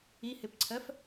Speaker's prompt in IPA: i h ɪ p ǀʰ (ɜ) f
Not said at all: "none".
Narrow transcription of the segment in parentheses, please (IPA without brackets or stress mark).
ɜ